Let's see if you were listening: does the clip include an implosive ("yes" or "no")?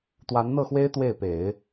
no